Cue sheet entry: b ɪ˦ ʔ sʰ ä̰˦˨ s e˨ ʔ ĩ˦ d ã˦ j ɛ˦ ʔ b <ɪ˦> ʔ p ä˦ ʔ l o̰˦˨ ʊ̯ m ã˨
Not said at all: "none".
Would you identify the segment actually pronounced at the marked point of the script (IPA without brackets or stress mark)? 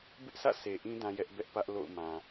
ɛ˦